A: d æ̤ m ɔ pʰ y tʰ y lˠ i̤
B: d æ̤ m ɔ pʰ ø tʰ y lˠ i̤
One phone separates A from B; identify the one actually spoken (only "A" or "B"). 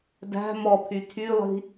A